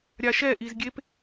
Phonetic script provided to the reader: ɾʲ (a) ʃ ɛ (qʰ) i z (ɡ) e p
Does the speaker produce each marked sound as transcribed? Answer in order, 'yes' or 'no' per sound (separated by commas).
yes, no, no